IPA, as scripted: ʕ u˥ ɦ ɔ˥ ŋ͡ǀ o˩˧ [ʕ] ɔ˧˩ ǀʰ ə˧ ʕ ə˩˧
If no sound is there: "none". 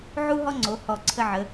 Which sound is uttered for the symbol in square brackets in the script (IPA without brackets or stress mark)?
h